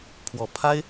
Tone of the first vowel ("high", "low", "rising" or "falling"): low